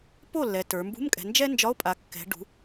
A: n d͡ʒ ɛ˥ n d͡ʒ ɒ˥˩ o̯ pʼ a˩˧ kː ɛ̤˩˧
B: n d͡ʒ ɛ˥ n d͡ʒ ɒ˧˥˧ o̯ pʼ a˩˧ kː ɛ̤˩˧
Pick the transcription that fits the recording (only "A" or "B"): B